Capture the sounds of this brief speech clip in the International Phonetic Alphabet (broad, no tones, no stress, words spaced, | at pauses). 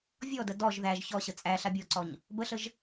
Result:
vʲɔdə dɔʒ ðæʒ çɔɕə t͡sʼæ ɬabʲɔǀɔɲ | bəɬəʒ